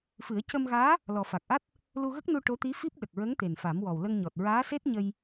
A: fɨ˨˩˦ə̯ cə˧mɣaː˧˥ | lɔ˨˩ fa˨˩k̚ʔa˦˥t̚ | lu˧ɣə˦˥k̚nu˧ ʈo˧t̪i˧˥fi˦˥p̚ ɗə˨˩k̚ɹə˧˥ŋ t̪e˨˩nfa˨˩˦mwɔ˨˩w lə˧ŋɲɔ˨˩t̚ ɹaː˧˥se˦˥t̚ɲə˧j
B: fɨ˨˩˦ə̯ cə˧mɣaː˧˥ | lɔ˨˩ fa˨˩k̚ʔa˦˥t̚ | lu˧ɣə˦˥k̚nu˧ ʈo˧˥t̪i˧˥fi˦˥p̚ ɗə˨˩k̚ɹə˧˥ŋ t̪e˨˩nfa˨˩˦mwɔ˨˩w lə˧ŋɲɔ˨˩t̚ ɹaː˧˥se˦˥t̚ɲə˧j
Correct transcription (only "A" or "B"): B